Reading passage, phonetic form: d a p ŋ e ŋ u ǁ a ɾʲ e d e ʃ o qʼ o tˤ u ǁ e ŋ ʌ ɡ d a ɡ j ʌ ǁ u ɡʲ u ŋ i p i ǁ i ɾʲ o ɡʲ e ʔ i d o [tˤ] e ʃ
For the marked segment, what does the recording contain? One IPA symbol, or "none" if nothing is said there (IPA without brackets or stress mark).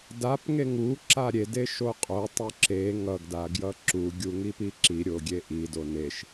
n